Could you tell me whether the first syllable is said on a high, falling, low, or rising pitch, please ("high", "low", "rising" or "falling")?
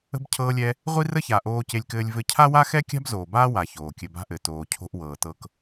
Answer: high